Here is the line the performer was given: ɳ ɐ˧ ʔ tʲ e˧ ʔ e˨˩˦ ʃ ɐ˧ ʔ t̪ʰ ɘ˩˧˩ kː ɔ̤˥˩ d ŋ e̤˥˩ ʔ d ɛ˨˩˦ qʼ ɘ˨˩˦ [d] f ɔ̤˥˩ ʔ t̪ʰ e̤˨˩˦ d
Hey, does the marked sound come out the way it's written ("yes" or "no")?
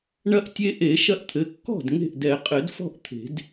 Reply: yes